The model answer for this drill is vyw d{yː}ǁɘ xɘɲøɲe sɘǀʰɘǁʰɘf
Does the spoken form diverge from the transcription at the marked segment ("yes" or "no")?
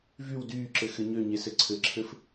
no